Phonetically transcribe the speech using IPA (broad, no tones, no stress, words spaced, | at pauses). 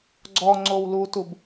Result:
ɡ͡ǀɔ ŋ͡ǀowlutub